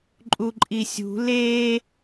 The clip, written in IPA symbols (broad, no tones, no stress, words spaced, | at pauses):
ǃʼuǃʼisʲṳ le